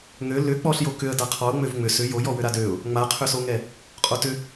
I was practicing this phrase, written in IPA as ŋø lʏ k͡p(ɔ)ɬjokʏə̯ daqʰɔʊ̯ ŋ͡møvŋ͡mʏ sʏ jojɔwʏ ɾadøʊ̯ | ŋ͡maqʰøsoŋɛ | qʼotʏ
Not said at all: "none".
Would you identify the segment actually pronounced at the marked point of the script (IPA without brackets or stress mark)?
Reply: ɔ